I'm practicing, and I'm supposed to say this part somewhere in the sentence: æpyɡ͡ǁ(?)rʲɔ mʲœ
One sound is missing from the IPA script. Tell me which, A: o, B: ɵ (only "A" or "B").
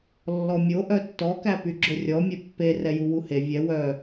B